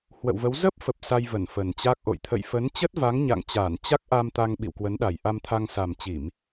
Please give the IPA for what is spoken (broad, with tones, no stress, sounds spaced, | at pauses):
h w ə̰˧˨ w v ə˨˦ w z ə˦˥ p̚ f ə˨˩ p̚ s a˧ j v ə˧˩ n f ə˨˩ n t͡ɕ a˦˥ k̚ ʔ o̰˧˨ j t̪ʰ ə̰˧˨ j f ə˨˦ n t͡ɕ ə˦˥ t̚ v a˨˦ ŋ ɲ a̰˧˨ ŋ t͡ɕ aː˧˩ n t͡ɕ a˦˥ k̚ ʔ a˧ m t̪ a˧ ŋ ɓ ḭ˧˨ w k w ə˨˦ n ɗ a˨˩ j ʔ a˧ m t̪ʰ a˧ ŋ s a˨˩ m t͡ɕ i˧˩˨ m